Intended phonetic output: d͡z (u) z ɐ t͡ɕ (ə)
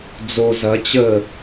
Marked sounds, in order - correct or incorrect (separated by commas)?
incorrect, correct